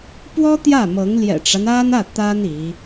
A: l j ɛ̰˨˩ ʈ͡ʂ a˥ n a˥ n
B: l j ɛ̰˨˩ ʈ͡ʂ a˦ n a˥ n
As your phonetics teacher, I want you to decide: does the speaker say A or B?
B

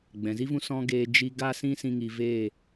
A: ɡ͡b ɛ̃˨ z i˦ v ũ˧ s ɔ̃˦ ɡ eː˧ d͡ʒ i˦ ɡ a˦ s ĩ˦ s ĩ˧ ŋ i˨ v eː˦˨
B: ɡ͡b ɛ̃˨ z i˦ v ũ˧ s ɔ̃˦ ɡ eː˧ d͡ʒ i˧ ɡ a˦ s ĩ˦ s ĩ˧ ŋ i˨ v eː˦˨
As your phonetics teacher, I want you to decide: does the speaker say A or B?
B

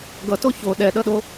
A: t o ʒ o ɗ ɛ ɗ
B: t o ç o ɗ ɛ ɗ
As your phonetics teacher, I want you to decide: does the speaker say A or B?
B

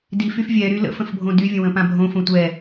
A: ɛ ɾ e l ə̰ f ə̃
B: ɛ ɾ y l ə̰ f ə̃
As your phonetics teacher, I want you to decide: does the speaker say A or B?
B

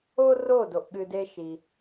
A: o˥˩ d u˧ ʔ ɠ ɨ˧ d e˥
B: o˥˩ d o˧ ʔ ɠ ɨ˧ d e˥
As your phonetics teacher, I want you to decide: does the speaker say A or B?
B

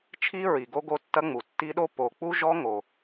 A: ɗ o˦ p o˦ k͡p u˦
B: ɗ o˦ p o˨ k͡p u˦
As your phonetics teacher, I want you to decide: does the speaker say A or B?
B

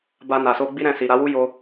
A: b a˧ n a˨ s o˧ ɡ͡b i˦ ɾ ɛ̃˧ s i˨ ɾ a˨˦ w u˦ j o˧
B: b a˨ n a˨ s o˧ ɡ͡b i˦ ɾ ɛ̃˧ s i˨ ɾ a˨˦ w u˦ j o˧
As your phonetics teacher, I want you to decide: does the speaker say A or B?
A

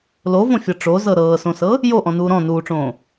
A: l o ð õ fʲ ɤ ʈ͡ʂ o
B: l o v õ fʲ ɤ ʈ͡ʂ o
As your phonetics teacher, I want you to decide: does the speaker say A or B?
B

